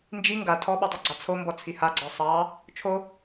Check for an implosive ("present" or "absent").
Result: present